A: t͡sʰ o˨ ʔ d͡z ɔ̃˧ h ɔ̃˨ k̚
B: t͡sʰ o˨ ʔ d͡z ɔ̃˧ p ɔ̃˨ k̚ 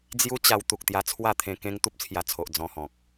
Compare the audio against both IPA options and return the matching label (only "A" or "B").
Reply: A